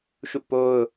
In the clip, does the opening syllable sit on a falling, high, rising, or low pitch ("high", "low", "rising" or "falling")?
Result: falling